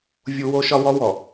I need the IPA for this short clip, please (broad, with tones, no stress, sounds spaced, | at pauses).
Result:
vʲ u˦ w o˦ ʃ ɒ˦ w ɔ˦ w ɔ˨